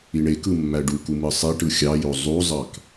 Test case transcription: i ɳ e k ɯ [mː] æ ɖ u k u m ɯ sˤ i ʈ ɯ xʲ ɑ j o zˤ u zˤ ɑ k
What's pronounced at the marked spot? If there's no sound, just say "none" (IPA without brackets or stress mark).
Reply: mː